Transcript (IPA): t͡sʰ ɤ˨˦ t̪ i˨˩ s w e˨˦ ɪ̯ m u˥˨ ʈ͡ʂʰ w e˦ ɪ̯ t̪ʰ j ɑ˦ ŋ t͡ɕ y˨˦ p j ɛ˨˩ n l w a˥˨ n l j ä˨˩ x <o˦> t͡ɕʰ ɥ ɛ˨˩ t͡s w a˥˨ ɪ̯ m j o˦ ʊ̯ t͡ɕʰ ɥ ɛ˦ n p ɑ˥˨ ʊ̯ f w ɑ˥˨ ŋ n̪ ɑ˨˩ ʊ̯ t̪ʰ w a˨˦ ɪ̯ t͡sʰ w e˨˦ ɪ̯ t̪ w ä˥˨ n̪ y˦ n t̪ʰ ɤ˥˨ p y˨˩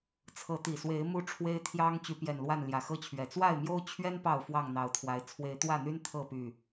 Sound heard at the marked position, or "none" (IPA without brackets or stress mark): ɤ˦